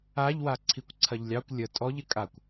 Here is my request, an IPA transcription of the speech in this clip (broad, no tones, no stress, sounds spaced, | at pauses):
a ʎ w a ǀʰ i kʷ ǀʰ ɐ ʎ lʲ ɑ kʷ lʲ ə tʼ ɔ ʎ ɪ kʼ a kʷ